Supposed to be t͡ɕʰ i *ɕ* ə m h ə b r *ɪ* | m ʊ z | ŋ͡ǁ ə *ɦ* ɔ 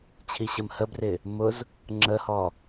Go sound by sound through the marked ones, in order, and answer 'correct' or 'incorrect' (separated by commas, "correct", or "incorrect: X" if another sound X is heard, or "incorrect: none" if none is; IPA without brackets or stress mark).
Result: correct, correct, incorrect: h